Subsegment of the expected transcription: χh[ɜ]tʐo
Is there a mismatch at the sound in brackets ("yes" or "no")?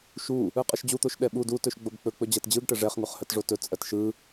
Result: no